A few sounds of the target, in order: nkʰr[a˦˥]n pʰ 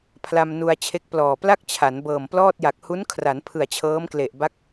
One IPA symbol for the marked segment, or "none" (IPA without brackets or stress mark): a˩˦